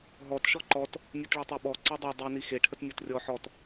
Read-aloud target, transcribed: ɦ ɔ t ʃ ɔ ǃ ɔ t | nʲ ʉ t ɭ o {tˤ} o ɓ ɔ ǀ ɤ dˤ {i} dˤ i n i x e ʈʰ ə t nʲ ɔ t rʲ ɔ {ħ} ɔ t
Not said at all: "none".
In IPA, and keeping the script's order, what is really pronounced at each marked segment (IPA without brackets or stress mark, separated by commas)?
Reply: tˤ, e, ħ